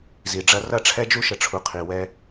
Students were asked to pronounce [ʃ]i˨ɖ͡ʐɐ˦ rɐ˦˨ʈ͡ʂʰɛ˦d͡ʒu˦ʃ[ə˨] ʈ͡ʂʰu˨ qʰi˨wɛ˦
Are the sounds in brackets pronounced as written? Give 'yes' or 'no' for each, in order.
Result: no, yes

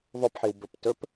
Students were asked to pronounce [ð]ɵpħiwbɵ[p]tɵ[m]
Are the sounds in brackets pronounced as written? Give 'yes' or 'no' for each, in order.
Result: no, yes, no

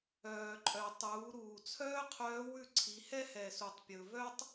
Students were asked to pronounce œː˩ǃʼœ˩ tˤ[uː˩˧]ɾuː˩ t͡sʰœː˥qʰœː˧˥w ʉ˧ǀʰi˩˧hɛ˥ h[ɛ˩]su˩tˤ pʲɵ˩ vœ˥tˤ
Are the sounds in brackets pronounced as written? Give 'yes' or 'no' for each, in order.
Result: yes, yes

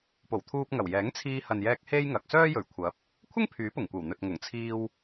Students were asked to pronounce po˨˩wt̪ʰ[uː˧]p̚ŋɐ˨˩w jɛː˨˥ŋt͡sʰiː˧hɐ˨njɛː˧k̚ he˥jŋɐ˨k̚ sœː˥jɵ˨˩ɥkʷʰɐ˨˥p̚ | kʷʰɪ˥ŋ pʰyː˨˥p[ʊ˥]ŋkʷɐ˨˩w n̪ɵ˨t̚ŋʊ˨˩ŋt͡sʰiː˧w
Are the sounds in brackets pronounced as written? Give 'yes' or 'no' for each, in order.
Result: yes, no

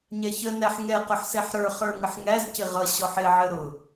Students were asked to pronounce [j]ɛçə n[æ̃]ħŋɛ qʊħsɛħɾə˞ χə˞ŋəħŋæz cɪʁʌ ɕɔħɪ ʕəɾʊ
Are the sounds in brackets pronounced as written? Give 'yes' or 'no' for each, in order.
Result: no, no

